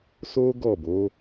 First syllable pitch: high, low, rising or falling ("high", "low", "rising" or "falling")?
high